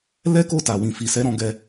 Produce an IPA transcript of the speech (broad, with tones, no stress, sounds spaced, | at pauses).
l ɛ˦ k o˦˨ t a˨ w ĩ˨ f i˨ s ɛ˨˦ ɾ ɔ̃˧ ɡ ɛ˧